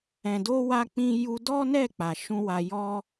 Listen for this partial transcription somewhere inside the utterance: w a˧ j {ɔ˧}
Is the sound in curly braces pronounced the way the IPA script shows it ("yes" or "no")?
yes